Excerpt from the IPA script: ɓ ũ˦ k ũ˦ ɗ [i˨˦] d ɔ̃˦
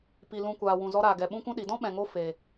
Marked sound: correct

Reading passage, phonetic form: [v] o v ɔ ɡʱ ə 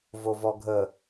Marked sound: correct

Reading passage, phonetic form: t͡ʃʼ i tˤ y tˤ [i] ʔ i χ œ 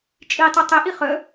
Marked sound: incorrect: e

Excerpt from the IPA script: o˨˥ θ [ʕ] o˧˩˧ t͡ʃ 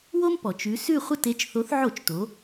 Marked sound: correct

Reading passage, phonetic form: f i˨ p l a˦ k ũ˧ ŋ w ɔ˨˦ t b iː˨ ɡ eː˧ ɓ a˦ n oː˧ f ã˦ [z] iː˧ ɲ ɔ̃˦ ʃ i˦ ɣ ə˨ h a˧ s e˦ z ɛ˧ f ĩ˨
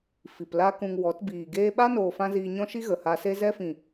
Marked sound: correct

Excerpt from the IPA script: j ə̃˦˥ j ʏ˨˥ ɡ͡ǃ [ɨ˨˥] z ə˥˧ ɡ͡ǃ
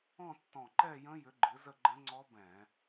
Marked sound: correct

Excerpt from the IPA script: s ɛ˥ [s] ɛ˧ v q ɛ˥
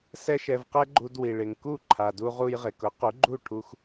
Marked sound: incorrect: ʃ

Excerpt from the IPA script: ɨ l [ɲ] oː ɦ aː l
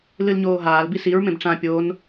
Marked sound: correct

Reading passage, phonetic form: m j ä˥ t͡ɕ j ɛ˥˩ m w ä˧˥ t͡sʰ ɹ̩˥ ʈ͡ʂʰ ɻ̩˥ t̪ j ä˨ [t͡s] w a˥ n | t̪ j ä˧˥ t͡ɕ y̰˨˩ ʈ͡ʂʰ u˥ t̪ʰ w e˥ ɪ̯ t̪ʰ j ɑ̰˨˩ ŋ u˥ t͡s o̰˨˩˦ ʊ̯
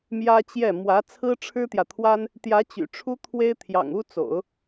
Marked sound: incorrect: t̪ʰ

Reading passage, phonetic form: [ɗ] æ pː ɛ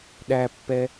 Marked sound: correct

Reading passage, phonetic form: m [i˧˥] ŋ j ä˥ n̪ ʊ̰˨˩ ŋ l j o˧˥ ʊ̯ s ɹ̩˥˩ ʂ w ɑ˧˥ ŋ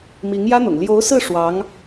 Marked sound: correct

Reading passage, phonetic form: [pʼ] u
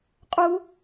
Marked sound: incorrect: qʼ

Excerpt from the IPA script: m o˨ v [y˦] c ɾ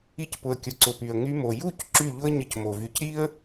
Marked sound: incorrect: y˧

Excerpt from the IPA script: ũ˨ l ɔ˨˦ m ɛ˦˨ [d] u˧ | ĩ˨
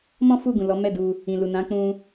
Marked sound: correct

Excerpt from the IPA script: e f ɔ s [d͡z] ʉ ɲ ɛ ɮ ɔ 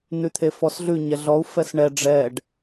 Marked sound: incorrect: ɮ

